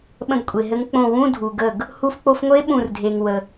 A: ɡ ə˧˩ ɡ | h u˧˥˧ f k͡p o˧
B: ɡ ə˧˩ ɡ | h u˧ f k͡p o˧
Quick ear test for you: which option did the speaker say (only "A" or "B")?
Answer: B